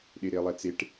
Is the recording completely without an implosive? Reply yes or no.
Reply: no